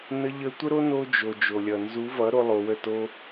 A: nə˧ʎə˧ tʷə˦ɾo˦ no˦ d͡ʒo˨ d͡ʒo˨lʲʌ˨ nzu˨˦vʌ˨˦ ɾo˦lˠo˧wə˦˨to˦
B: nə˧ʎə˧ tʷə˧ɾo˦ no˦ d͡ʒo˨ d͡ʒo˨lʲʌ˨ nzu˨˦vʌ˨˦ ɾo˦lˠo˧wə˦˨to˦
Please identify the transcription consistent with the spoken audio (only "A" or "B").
A